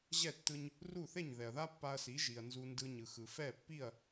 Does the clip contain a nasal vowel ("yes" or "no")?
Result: no